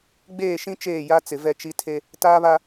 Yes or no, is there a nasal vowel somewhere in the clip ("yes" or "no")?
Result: yes